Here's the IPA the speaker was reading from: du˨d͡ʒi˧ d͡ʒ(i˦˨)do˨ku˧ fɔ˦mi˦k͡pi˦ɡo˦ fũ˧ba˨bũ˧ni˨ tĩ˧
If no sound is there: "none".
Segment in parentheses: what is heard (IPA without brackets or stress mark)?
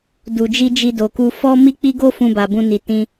i˧